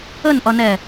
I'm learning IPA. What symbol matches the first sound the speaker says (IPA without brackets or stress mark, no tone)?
ə